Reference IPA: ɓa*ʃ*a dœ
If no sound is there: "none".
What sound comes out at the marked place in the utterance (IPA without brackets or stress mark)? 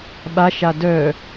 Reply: ʃ